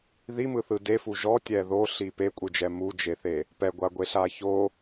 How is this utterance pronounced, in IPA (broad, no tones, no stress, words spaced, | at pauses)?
ðimɯθɯ defu ʒɔtʲɛ ðoɬi pekʷʼɯd͡ʒɛ mud͡ʒeθe | pɛɡʷaɡʷeɬa ço